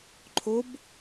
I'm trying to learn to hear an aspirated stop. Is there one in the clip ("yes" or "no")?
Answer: yes